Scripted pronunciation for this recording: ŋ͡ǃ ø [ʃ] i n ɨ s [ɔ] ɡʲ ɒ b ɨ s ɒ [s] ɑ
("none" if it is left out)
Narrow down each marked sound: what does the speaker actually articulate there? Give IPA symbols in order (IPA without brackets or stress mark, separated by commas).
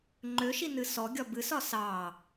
ʃ, ɔ, s